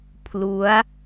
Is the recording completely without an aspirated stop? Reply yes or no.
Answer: no